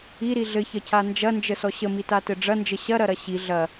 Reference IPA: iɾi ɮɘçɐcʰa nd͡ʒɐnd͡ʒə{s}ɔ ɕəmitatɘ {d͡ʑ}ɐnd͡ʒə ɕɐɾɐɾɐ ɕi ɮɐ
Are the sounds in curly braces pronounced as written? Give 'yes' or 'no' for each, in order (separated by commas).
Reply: yes, no